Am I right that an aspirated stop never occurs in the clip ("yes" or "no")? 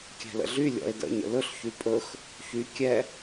yes